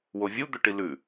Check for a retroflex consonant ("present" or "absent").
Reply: present